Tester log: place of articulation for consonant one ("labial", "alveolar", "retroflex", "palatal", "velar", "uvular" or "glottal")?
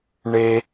retroflex